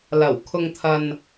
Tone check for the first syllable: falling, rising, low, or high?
low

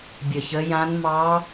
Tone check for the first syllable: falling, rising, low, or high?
low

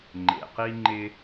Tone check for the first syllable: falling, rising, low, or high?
low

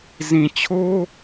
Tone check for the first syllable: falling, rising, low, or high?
low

